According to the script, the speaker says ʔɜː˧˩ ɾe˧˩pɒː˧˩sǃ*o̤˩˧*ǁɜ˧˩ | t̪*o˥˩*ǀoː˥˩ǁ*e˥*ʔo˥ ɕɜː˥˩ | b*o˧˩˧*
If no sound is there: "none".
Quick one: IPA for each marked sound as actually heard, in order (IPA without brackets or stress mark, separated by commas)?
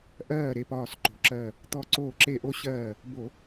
o̤˩˧, ɔ˥˩, e˥˩, o˧˩˧